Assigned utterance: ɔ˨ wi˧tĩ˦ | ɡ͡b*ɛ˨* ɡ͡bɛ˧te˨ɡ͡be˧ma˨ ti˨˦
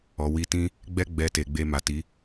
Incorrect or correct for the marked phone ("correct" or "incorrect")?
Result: incorrect